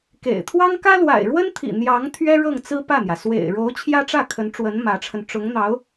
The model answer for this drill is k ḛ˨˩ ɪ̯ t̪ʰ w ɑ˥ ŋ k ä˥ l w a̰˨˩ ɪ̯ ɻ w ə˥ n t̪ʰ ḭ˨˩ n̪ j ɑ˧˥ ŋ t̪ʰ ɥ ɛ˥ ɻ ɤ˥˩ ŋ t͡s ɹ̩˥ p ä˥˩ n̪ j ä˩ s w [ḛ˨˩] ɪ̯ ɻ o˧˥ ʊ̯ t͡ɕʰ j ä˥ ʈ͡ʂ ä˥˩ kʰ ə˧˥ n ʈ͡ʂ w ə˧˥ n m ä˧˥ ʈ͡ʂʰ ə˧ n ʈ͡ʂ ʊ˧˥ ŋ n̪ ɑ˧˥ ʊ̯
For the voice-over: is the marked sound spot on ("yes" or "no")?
yes